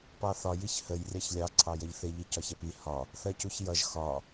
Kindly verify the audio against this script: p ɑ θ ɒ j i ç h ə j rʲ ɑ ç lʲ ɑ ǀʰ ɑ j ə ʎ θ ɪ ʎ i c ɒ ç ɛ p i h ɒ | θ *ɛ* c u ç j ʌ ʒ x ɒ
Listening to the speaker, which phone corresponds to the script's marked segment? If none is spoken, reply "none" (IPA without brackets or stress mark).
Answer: ɜ